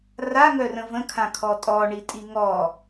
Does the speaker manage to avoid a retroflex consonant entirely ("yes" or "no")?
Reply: no